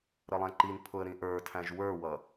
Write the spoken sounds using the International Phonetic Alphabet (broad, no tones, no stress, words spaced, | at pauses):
ɾəlˠæ̃ǃinpʰʊə̯ ɾĩʔə˞tʰæ̃ʒ wə˞wʌ